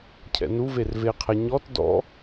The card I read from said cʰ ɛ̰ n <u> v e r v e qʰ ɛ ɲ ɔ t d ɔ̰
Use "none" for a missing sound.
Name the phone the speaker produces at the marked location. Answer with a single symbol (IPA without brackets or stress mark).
u